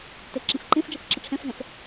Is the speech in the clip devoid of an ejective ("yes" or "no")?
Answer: yes